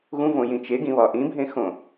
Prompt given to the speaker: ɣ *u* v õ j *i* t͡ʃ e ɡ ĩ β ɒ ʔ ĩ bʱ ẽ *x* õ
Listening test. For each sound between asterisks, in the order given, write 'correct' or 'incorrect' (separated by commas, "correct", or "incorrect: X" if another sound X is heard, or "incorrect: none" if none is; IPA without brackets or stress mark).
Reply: incorrect: ũ, incorrect: ĩ, correct